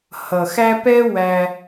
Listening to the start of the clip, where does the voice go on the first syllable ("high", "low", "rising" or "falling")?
low